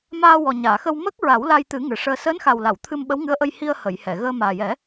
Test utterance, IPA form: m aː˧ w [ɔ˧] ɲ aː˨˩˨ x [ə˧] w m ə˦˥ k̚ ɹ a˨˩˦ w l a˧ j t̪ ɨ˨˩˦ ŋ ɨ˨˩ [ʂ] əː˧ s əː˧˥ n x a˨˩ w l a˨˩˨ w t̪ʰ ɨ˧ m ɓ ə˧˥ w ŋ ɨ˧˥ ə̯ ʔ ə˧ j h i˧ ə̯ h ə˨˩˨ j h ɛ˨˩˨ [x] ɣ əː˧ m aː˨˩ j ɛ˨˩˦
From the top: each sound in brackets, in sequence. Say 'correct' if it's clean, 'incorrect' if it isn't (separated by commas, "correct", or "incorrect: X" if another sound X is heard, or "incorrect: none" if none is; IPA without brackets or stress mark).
incorrect: ɔ˨˩, correct, correct, incorrect: none